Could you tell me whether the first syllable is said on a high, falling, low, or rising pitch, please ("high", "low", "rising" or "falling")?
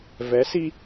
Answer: rising